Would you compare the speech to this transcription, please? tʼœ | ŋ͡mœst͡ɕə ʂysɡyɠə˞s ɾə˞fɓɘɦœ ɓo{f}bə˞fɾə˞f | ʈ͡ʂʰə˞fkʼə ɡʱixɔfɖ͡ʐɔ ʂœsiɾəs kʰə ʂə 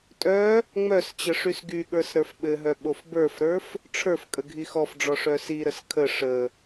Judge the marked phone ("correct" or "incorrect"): correct